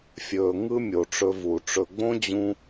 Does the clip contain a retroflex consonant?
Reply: yes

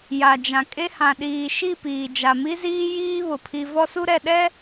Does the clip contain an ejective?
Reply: yes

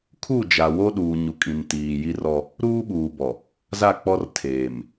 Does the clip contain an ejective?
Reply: yes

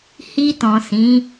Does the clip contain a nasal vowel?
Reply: yes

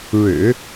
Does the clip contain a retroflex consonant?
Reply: yes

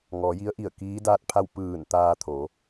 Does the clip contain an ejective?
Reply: no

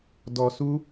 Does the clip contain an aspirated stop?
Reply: no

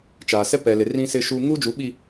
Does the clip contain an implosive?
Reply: yes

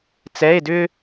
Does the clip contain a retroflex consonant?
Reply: no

